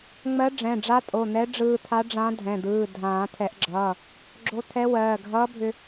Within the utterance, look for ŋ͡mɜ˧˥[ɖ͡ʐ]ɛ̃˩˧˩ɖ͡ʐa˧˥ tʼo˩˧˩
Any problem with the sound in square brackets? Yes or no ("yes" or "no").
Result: no